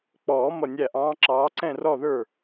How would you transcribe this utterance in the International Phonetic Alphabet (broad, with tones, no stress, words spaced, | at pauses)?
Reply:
k͡pɔː˨˩˦ mʌ˧˩nʲæ˧˩ʔɑ̃ː˨˦ǁɑː˨˦ ǀɛ̃˥˩rɔ˥˩ðə˞˥˩